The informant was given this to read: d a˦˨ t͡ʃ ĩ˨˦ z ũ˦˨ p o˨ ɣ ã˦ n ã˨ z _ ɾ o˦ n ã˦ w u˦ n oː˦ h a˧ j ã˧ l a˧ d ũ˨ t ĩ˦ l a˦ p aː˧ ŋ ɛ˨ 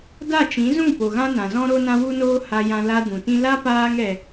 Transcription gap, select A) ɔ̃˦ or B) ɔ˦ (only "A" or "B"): A